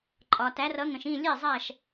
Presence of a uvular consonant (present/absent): absent